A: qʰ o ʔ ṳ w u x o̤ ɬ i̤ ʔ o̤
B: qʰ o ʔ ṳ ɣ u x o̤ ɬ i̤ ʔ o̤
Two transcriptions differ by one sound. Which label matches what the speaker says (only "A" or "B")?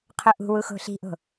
A